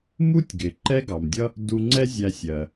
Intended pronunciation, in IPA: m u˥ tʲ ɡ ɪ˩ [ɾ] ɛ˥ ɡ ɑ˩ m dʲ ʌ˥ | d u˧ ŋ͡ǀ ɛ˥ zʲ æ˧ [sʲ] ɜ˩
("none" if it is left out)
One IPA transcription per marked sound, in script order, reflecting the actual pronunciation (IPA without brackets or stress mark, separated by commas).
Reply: ǃ, sʲ